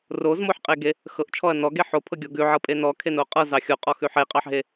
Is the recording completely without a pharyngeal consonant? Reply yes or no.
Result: no